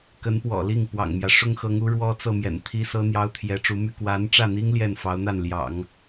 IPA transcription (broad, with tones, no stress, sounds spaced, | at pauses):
k ə˧˥ n p w ɔ̰˨˩ l i˥˩ ŋ p w ɑ̰˨˩ ŋ m j ä˦ ʂ ʊ˥ ŋ x ɤ˧˥ ŋ u˧˥ ɻ w ɔ˥ t͡s ɤ˥˩ m j ɛ̰˨˩ n t̪ʰ i˥ s ɤ˥ n̪ j ɑ˥ ʊ̯ t̪ʰ j ɛ˧˥ ʈ͡ʂ u˧˥ m y˥˩ k w a˧˥ n ʈ͡ʂ ä˥˩ n̪ i˥ ŋ l j ɛ˥˩ n f ɑ˧˥ ʊ̯ n̪ a˥˩ n l j ɑ̰˨˩˦ ŋ